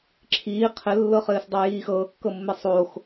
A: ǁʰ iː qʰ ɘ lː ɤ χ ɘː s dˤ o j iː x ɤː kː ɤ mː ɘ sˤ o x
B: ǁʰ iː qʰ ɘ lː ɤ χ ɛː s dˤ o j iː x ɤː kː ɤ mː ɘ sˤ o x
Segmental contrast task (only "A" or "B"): A